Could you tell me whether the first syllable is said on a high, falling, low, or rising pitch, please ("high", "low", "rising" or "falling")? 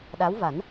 rising